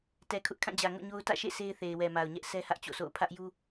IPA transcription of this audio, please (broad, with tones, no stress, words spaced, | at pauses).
tɛ˨kʰʊ˦ʔkʰã˦˨d͡ʑä˨ ŋo̰˦˨ɲo˦ʊ̯ tä̰˦˨ʃḛ˦˨ se˦ɪ̯θe˨ɪ̯ wɛ˨ma˨ʊ̯ɲɛ˦ʔ sɛ˦hä˦ʔt͡ɕo̰˦˨sʰo̰˦˨ʊ̯ pʰä˦ʔju˦